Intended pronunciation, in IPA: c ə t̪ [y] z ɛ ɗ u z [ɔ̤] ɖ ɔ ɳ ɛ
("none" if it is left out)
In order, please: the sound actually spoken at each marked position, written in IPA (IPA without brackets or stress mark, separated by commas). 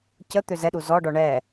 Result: ø, ɔ